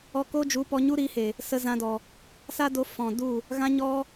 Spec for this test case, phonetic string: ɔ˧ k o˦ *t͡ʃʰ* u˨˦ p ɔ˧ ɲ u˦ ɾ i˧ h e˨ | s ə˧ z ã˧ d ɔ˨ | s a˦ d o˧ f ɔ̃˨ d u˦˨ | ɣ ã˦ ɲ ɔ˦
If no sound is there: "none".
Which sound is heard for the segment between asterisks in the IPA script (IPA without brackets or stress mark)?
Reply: d͡ʒ